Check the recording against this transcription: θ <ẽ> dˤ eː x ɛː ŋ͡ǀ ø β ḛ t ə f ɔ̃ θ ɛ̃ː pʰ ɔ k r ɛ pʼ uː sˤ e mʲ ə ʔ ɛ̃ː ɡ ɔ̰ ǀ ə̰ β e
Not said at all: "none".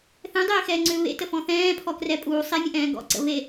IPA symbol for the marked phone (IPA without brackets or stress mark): ɛ̃